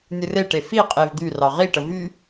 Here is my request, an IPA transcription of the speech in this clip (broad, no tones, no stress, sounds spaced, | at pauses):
nʲ ɨ r e ʈ e f i qʼ e v d̪ y r ɑ ʁ i ʈ ə v y